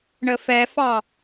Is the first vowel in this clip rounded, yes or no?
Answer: no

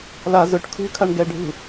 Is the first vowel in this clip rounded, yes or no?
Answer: no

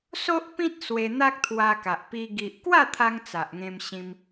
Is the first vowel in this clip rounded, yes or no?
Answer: yes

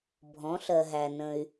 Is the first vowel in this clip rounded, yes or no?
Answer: yes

